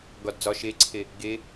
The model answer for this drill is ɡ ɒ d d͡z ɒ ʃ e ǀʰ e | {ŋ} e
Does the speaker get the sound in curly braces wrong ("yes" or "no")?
yes